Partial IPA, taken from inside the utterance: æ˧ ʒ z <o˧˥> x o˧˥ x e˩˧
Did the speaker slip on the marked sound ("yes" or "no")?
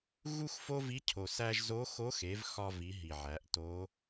no